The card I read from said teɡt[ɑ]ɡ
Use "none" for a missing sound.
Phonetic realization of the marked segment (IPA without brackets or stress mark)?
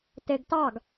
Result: ɑ